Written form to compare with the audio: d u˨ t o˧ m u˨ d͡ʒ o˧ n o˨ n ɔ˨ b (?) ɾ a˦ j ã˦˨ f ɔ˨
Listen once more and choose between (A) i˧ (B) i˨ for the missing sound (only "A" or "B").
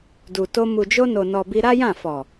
A